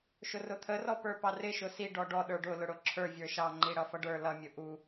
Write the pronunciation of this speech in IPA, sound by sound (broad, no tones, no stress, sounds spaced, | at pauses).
ʃ ʊ r ʊ t̪ʰ ə r ɔ p ə˞ p ɑ r ɪ ʃ ʊ s i ɖ ɔ ɖ ɔ ɗ ə˞ ɖ ʊ l ʊ ɽ ʊ ǁʰ ə˞ vʲ ə˞ ʃ ɑ ŋ͡ǃ i ɽ ʌ f ʌ ɖ ə˞ l ʌ mʲ ʊ ʔ u